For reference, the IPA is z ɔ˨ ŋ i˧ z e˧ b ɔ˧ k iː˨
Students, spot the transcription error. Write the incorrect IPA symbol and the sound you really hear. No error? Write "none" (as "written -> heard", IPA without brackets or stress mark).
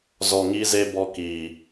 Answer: none